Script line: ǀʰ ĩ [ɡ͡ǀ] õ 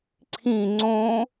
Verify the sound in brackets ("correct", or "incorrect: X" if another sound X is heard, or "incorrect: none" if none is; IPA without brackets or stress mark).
incorrect: ŋ͡ǀ